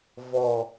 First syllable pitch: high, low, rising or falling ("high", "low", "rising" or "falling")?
low